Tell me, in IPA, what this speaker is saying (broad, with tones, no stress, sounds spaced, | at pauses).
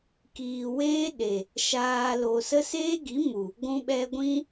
k iː˨ w eː˦ ɗ e˨ | ʃ aː˨ l o˨ s ə˦ s eː˦ ɡ i˨˦ m u˨ | ɡʷ ũ˧ ɓ ɛ˧ ɡʷ ĩ˧